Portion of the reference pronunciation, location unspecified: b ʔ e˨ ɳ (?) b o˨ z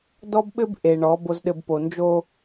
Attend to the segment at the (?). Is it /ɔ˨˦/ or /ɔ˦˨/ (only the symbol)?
ɔ˨˦